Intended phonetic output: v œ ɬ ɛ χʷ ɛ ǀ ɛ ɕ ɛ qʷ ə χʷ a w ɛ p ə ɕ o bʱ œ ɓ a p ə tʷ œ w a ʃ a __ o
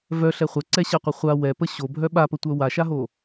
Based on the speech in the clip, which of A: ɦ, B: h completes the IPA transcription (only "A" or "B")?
A